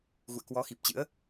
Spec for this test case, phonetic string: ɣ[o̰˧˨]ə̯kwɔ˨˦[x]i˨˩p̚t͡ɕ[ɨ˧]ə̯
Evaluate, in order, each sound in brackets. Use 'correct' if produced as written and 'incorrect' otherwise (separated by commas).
incorrect, correct, incorrect